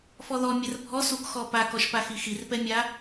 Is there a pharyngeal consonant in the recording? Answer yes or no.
no